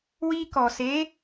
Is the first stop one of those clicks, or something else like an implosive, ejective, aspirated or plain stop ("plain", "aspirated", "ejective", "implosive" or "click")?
plain